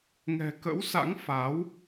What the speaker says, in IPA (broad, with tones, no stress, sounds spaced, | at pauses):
ŋ ɛ̤˨˩ k ə̰˧˥ w s a̰˧˥ ŋ f a˨˦ w